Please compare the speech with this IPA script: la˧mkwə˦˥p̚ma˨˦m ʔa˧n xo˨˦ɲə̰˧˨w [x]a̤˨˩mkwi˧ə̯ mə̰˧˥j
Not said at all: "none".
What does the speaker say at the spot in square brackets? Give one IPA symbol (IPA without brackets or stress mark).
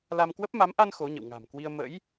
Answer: ŋ